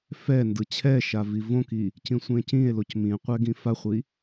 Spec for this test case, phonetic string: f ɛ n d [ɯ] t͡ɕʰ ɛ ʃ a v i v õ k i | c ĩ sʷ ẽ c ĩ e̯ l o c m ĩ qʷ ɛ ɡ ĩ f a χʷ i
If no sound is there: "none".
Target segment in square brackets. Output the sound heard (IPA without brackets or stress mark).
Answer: ɯ